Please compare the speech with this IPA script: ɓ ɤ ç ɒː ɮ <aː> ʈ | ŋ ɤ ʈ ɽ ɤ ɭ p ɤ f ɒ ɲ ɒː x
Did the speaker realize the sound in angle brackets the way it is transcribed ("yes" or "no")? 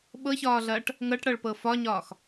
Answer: no